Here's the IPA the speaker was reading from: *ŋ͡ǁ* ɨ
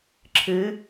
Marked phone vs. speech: incorrect: ǁʰ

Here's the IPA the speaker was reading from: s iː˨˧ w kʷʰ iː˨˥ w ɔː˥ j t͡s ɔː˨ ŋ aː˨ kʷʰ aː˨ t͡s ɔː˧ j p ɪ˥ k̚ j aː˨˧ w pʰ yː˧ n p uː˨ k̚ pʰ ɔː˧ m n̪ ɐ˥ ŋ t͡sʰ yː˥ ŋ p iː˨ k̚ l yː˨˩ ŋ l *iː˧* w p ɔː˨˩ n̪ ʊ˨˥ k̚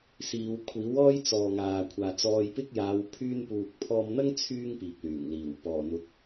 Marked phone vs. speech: incorrect: iː˨˩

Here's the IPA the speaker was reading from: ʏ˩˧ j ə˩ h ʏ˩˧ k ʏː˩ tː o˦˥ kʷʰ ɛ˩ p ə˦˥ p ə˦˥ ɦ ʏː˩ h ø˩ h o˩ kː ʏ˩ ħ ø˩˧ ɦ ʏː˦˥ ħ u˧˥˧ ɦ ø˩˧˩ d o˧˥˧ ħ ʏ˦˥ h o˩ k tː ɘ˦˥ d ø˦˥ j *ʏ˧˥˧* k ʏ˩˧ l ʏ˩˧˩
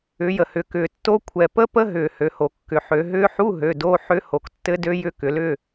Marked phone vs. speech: correct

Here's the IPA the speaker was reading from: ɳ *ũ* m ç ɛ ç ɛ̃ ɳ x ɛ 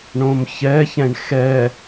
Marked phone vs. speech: incorrect: õ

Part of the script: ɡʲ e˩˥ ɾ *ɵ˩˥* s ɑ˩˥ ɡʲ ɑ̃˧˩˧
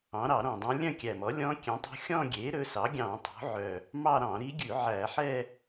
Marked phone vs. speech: correct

